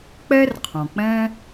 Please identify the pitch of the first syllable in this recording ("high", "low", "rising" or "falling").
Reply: high